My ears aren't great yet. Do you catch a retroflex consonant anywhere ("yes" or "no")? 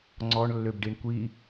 yes